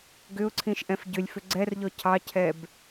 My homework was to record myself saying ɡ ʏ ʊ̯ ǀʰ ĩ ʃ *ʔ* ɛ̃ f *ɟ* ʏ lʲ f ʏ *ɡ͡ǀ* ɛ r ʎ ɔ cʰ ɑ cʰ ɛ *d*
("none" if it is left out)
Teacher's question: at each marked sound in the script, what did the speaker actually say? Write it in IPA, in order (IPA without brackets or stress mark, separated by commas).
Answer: ʔ, ɟ, ɡ͡ǀ, b